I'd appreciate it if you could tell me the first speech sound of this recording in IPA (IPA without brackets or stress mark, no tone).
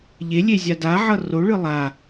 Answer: ʎ